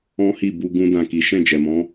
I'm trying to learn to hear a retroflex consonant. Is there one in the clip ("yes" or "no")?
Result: no